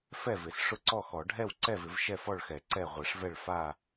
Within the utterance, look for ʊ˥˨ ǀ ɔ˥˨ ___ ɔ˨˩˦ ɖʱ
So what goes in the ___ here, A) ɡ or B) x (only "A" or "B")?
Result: B